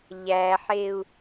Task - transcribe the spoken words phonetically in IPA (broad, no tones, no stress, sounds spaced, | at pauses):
ʎ æ ħ e u̯